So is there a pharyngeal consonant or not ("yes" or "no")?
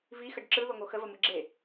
no